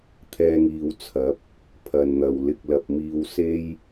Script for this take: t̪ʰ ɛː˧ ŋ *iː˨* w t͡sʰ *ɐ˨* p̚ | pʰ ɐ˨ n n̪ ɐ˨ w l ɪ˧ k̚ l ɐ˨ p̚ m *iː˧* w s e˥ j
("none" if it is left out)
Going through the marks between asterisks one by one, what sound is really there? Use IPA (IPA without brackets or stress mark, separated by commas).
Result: iː˨, ɐ˨˥, iː˧